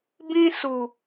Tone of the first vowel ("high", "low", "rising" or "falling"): high